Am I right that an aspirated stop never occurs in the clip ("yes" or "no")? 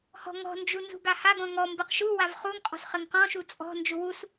yes